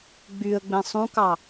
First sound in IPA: ɡ͡b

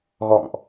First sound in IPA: ɣ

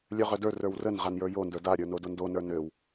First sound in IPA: lʲ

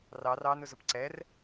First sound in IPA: r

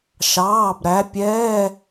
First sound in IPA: ʃ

